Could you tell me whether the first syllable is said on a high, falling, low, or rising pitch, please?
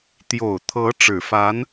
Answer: low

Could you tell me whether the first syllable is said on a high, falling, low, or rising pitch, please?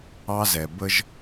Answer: high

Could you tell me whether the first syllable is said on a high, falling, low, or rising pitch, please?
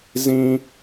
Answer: high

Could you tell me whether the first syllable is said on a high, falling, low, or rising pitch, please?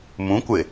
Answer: rising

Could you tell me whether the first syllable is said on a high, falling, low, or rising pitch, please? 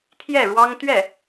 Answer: falling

